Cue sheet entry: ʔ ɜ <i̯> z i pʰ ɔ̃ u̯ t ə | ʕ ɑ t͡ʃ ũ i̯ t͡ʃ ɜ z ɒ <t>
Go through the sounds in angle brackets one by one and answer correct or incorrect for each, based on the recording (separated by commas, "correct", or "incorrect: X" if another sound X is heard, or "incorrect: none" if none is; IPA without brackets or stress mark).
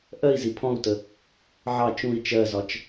correct, incorrect: t͡ʃ